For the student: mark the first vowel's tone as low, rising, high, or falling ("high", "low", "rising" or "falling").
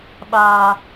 high